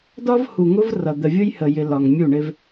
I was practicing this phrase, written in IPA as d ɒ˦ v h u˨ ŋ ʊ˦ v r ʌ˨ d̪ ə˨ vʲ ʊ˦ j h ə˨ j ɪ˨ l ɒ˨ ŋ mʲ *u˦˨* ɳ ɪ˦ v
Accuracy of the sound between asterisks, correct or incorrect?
correct